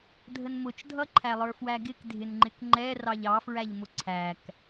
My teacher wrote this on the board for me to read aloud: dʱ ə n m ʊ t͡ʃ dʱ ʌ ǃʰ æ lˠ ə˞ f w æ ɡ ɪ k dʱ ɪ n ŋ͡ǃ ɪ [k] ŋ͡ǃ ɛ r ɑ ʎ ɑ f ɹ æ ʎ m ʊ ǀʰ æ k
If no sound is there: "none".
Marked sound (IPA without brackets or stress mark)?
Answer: k